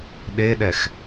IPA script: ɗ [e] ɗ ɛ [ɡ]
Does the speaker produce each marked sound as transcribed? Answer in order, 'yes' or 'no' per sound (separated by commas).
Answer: yes, no